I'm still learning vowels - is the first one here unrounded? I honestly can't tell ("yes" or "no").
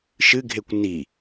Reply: yes